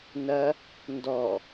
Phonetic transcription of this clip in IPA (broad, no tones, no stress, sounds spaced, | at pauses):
n ɐ | n d ɔ